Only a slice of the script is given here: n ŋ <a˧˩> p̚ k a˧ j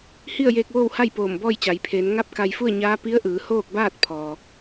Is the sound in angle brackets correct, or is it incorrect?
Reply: incorrect